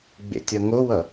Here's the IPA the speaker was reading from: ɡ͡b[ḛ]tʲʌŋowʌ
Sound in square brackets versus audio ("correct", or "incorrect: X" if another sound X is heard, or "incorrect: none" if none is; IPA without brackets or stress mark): correct